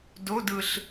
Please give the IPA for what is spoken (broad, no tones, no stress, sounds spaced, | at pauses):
d o d ɯ ɬ